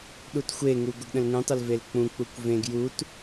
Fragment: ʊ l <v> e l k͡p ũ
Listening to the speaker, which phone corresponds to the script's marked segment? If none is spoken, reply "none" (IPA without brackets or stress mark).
v